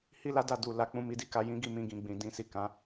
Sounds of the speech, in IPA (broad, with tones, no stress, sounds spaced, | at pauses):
h i˦ l a˦ d a˦˨ d u˨ l a˨˦ k͡p ũ˦˨ m i˨˦ d i˦˨ k a˧ j ĩ˦ ɡ i˦˨ m ĩ˧ ɡ ĩ˨ ɡ͡b ĩ˨ d ĩ˧ s i˨ k ã˨˦